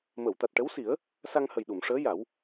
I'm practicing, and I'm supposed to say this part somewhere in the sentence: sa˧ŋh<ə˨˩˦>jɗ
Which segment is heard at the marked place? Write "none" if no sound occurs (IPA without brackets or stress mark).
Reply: ə˨˩